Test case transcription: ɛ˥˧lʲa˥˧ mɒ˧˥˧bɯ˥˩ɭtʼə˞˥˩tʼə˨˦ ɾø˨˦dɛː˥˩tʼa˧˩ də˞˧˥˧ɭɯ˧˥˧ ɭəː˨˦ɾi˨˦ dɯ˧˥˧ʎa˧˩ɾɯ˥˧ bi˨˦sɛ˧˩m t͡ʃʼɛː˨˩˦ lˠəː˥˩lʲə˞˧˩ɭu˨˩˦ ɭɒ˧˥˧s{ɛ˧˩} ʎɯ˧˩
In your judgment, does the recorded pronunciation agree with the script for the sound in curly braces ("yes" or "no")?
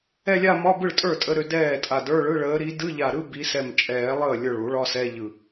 no